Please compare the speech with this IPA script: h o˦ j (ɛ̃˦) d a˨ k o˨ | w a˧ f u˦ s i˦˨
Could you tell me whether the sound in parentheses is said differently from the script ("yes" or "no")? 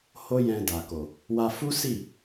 yes